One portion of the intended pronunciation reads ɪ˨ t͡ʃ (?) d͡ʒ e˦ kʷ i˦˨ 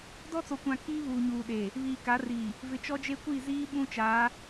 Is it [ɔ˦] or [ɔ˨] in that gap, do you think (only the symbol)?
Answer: ɔ˦